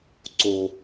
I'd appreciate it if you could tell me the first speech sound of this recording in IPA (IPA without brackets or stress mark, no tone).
ǀ